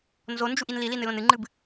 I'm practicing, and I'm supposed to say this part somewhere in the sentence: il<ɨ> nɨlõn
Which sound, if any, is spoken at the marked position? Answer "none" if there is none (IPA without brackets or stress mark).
i